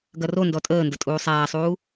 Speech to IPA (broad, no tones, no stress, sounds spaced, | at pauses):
ɡ ɐ r o n d ɔ tʼ əː n d ə tʼ uː sˤ æː sˤ uː